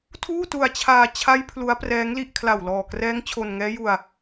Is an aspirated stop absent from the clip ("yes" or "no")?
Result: no